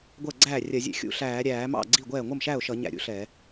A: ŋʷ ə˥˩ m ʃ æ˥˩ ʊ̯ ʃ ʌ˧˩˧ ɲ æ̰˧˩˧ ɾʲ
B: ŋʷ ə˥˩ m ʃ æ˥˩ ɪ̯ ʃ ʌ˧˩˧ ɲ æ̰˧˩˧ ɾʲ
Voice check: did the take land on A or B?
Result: A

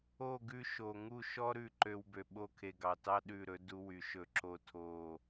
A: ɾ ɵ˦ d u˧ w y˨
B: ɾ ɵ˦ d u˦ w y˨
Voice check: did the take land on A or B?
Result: A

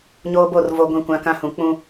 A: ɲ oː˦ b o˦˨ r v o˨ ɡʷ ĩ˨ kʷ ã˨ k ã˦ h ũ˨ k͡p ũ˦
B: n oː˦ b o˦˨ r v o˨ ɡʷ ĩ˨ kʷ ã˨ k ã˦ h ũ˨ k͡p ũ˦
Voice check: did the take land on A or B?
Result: A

